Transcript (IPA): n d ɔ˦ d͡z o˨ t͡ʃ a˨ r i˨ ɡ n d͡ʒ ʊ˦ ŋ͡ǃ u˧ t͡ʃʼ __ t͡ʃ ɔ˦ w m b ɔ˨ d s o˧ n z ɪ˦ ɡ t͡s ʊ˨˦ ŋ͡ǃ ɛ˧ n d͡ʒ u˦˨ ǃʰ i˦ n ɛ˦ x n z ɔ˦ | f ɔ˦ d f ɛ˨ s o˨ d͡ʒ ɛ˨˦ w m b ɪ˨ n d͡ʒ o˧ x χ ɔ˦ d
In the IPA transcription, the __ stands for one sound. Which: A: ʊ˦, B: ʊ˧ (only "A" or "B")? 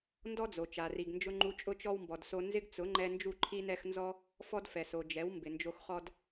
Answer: A